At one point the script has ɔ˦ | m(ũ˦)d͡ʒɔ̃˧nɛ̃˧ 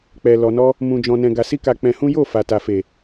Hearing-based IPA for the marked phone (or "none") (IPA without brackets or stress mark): ũ˧